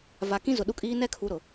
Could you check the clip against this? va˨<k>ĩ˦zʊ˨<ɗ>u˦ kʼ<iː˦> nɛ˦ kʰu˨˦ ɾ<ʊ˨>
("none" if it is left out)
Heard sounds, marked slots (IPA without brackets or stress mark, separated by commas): k, ɗ, iː˦, ʊ˨